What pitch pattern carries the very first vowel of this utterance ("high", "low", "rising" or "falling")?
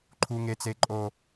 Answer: high